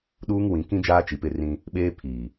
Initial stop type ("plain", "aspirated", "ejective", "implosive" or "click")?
implosive